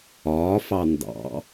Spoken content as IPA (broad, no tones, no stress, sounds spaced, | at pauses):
ɒː f ɑ n d ɑ̰